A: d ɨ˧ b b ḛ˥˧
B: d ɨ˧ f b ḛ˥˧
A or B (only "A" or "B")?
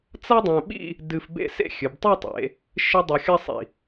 B